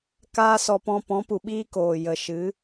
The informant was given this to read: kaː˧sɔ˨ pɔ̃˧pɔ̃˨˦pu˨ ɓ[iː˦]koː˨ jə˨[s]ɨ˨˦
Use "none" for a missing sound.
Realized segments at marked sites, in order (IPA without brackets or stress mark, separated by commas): iː˦, ʃ